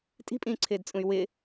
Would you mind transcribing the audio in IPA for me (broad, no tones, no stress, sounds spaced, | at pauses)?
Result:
tʼ i̤ pʼ ĩː ǀʰ ɪː d t͡sʼ ũ y̯ w ɪ